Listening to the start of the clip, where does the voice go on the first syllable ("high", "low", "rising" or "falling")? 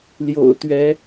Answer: low